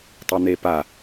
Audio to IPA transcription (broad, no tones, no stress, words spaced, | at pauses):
tˤen̪epa